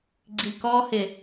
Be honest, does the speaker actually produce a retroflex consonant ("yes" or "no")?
no